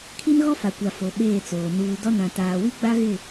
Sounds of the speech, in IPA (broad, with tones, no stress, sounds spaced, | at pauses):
kʰ i˦ n ɣ ɔ˦ f a˨ kʷ a˨ f o˨ ɓ eː˦˨ t͡s oː˨ n uː˨ d ɔ˦ n ã˨ t aː˨ w i˦ ɡ͡b a˦ ɣ ɪ˦˨